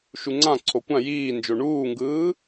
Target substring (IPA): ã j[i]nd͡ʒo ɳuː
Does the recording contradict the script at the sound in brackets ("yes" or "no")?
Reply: yes